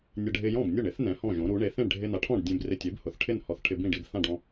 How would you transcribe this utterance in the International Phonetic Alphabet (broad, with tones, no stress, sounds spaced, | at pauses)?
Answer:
nʲ ɛ˧ ɖʱ ɪ˧ j ɔ̃˥˩ b nʲ ʊ˥˩ ɳ ɪ˩˥ θ n ɛ̃˩˥ h ɔ̃˥˩ ʒ õ˩˥ ɾ u˩˥ ɳ e˩˥ θ ẽ˥˩ ɳ ɖʱ ɪ˧ n a˩˥ ʈʰ ɔ̃˥˩ ɖ dʲ ẽ˧ b r ɪ˧ tʲ e˩˥ b h ʊ˩˥ θ ʈʰ ɪ˥˩ n h ɔ˧ θ ʈʰ ɪ˧ b ĩ˥˩ ɖ i˧ b θ ã˥˩ ɖ ɔ̃˧